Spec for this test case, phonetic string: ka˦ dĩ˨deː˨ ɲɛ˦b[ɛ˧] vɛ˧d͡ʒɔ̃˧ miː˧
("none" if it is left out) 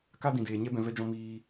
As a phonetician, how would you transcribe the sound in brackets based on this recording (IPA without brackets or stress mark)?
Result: ɛ̃˧